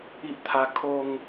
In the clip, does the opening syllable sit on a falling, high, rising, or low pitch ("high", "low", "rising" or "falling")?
high